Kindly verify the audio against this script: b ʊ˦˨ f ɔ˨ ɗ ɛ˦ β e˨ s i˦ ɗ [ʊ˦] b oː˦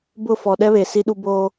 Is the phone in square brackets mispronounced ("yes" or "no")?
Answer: yes